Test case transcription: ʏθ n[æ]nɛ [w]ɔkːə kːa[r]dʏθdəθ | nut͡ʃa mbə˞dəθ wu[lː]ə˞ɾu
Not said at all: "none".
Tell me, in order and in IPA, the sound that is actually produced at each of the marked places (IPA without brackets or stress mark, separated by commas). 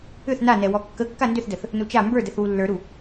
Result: a, w, n, lː